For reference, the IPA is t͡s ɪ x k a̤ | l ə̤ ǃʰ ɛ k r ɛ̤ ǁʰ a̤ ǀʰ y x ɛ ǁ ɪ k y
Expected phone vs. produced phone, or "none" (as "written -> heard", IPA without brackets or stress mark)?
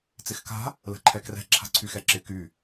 none